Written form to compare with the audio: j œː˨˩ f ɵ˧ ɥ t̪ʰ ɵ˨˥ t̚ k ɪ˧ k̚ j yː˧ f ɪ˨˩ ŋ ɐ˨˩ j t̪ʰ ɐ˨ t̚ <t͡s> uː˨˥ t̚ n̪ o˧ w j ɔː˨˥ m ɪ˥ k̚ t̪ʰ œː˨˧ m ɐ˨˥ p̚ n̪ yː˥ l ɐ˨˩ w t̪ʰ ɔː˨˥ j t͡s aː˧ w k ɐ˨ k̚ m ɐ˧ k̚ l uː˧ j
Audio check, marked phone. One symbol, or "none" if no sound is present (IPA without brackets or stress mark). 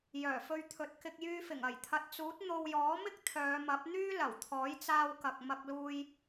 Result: t͡s